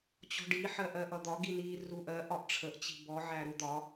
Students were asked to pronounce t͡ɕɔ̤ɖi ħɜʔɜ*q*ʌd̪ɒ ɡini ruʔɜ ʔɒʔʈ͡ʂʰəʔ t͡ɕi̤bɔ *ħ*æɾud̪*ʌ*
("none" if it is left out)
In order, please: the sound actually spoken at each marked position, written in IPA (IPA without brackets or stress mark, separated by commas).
ʔ, ʕ, ɒ